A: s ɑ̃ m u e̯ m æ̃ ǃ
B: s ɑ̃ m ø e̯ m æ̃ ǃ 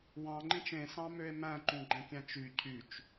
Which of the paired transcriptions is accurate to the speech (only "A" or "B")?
B